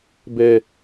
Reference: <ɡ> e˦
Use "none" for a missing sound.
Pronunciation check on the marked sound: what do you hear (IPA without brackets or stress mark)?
b